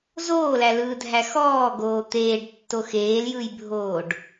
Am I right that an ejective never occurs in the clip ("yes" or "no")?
yes